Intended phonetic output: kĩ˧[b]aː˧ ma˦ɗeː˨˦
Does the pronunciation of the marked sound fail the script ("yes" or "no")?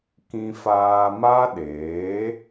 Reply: yes